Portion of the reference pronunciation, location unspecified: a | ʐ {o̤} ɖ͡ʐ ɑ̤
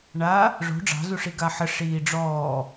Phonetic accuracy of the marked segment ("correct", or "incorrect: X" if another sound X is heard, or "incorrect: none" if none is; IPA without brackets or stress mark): correct